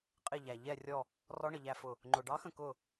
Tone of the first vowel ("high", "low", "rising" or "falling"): falling